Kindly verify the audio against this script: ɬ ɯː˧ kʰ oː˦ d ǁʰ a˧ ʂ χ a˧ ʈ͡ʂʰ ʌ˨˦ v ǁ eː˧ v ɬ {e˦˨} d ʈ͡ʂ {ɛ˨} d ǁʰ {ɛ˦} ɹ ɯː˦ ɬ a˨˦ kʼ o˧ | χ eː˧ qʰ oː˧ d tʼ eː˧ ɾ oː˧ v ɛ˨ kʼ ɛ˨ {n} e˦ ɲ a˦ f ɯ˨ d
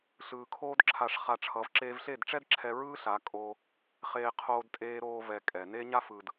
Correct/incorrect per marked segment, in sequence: correct, incorrect, incorrect, correct

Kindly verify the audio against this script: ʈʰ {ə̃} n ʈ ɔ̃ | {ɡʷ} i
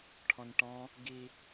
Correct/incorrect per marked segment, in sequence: incorrect, incorrect

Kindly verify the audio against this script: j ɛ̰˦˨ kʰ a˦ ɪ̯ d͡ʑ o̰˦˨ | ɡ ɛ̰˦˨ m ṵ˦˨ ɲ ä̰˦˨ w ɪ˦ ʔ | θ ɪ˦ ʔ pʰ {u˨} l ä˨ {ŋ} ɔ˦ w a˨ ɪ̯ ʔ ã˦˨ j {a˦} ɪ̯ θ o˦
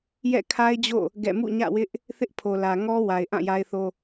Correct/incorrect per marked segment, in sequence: incorrect, correct, correct

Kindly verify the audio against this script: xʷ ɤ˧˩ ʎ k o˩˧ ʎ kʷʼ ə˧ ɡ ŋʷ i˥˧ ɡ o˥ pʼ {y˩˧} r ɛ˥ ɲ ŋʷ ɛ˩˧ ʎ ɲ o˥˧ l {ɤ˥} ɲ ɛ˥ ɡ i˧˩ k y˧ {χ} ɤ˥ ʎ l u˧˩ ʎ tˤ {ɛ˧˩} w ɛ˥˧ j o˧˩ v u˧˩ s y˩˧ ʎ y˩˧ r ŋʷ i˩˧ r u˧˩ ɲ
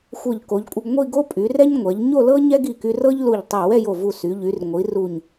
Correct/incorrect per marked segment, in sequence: correct, correct, incorrect, correct

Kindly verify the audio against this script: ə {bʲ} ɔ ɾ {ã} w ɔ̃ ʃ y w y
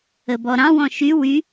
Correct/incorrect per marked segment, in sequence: incorrect, incorrect

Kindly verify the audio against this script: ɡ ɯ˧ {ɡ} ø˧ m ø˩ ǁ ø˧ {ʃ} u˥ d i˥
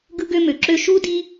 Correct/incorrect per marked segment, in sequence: correct, correct

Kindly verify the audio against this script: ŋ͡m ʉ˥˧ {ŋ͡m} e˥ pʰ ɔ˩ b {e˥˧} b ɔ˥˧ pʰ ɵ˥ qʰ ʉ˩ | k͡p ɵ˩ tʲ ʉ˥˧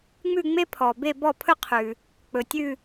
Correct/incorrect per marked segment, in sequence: correct, correct

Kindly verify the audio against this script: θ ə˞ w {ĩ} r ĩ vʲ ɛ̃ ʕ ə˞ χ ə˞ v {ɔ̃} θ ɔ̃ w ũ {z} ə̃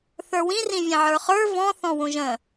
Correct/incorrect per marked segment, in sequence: correct, correct, incorrect

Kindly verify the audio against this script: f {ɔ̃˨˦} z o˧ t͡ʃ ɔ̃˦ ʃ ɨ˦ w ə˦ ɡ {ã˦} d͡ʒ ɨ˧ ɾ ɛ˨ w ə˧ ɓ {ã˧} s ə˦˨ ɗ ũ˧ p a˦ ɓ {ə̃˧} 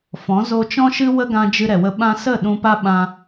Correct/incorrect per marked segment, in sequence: correct, incorrect, correct, incorrect

